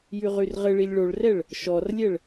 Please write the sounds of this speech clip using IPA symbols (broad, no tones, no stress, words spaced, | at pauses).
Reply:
jyʁyrʁɘɭilʲ ɭoɭrɛɭ | ʃɔrlʲɛɭ